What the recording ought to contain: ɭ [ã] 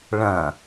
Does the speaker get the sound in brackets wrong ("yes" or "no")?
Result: yes